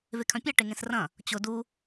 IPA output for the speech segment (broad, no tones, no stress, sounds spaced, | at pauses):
v e kʰ œ̃ pʲ ɛ ʈ e ŋ ẽ s r ɐ̃ | t͡ɕ ʊ d u